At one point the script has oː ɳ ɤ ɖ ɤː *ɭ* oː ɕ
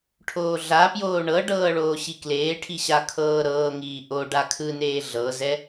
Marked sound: correct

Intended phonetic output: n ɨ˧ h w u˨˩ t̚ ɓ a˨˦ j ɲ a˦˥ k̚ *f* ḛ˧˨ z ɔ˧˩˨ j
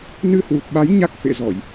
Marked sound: correct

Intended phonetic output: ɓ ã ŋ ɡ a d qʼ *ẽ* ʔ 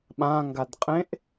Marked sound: correct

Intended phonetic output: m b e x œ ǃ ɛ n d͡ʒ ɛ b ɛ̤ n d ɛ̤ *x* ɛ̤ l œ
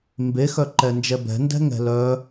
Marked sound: incorrect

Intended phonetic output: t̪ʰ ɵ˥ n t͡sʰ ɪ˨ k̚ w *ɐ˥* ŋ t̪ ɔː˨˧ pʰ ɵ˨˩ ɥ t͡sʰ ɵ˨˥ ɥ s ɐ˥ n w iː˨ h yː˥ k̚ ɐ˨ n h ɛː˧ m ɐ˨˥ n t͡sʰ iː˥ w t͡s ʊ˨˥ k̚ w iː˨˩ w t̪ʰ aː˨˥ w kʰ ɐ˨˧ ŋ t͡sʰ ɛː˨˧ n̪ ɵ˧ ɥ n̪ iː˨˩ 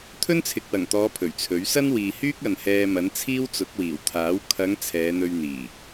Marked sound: incorrect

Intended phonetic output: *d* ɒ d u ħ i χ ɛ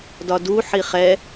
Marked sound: correct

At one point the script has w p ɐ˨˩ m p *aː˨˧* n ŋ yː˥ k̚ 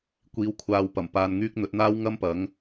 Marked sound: incorrect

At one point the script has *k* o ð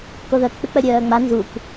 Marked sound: correct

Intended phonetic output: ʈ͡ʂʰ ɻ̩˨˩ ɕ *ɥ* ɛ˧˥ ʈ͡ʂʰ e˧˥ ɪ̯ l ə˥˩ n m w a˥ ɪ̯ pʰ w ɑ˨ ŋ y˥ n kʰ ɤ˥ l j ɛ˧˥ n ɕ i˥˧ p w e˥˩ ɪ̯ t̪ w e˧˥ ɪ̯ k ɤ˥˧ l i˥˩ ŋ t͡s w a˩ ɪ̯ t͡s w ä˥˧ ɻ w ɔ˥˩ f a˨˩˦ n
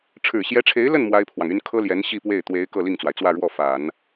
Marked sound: incorrect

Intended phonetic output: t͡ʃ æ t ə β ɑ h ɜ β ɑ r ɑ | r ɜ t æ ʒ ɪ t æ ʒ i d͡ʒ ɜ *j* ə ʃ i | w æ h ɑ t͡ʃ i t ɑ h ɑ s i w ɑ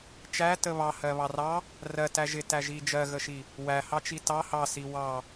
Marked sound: incorrect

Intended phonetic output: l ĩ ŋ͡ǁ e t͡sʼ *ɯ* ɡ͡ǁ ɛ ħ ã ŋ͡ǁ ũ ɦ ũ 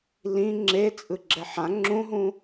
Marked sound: correct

